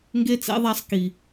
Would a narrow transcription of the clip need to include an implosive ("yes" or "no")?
no